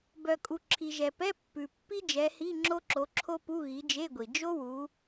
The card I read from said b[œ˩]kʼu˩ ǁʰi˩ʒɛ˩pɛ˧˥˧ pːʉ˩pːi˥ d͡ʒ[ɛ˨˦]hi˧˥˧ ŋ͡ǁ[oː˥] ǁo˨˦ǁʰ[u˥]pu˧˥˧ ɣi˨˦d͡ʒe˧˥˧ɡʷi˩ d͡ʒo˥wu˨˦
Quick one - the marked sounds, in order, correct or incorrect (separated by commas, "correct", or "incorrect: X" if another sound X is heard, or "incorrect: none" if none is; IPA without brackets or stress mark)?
correct, correct, incorrect: o˥, incorrect: o˥